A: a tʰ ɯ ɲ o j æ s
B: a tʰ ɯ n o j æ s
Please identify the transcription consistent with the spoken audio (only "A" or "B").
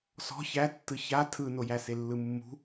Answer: B